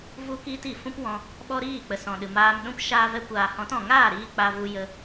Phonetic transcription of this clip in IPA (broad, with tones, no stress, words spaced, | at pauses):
vu˧kiː˧t i˨fũ˦pwɔ̃˧ | ɓɔ˦ɾiː˦˨k͡pə˨ sɔ̃˨ɗɨ˨maː˧m ɗũ˧p ʃaː˧vɛ˧kʷaː˨hɔ̃˨˦t ɔ̃˨ŋaː˦˨ɾiː˧ k͡pa˧vu˧ jə˧